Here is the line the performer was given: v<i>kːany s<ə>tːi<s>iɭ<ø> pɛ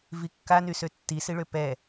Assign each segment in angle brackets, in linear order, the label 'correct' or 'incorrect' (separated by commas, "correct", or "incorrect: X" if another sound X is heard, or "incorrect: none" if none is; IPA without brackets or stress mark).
correct, incorrect: ø, correct, correct